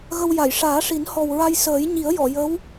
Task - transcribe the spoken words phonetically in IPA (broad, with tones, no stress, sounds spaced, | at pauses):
ɣ ə˧ w j a˨˩˨ j ʂ aː˨˩˦ ʂ i˨˩˦ n h ɔ˨˩ w ɹ a˧ j s əː˨˩˦ j ɲ i˨˩˦ ə̯ j ɔ˨˩˨ j ə˧˥ w